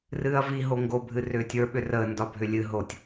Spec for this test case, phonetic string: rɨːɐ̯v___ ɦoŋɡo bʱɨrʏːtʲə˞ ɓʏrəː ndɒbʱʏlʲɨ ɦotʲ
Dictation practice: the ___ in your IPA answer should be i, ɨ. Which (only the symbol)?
i